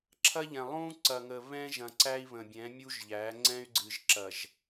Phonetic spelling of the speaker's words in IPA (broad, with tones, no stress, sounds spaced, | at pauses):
ǁʰ ɐ˦ ʎ ɛ̃˨ lˠ ũ˦ ǀ ɐ˨ ŋ ə˨ β ɛ̃˦ ʒ ɐ̃˨ ǀ æ˦ i̯ β ə̃˨ bʲ ɛ̃˨˦ mʲ u˦ ʒ ʎ æ˨˦ ŋ͡ǀ ɛ̃˦ y̯ ɡ͡ǀ ɨ˨ ʒ ǁ ɐ˨ ʒ